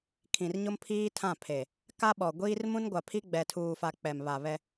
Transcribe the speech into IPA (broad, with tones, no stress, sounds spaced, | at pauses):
kʰ ĩ˨ r ɲ ʊ˦ m pʰ iː˦ tʰ ã˦˨ pʰ e˨ | k a˦ ɓ ɔ˨ ɡʷ iː˦ r m ũ˦ n ɡʷ a˨ pʰ i˦ ɡ͡b ɛ˨ tʰ uː˨ f a˨ k͡p ɛ˨ m β a˨ β ɛ˦